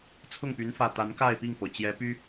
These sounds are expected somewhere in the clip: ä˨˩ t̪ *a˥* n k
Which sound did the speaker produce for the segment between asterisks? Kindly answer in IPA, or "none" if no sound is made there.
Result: a˧˥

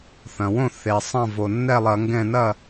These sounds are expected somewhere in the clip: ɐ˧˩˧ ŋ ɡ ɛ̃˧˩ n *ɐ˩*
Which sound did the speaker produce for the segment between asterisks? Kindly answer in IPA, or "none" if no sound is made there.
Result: ɐ˥˩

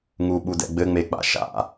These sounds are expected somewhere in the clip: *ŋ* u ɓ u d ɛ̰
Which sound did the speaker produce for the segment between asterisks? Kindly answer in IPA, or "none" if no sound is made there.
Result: ŋ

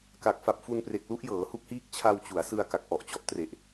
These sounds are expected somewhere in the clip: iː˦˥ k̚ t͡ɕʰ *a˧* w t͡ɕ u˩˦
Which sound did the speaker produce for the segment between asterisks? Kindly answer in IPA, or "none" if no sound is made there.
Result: a˧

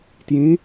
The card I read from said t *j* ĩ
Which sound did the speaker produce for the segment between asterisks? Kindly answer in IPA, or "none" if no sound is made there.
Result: j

